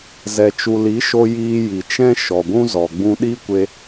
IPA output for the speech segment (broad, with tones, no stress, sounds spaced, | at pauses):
z ɛ˨ t͡ʃ u˨ l i˨˦ ʃ o˧ j iː˧ j i˨ t͡ʃ ɛ̃˦ ʃ ɔ˨ ɡʷ ũ˦ z ɔ˨ ɡ͡b ũ˧ ɗ i˦ kʷ e˧